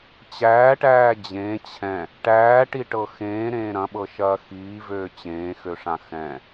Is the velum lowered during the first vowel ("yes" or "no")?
no